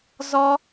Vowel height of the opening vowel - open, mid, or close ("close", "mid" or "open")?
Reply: mid